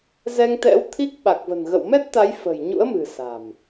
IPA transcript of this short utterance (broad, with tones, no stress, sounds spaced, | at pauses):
z ɛ˧ ŋ t̪ ɛ̰˧˥ w t̪ʰ i˦˥ k̚ ɓ a˨˩ k̚ v ə̤˨˩ n ɣ ə̰˧˨ w m ɛ˦˥ t̚ t̪ a˨˦ j f ə̤˨˩ j ɲ ṵ˧˥ ə̯ m ɨ̤˨˩ s a̤˨˩ m